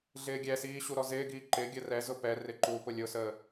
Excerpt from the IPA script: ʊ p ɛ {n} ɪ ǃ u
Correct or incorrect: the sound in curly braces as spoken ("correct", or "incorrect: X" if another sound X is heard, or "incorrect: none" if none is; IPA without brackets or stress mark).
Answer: incorrect: r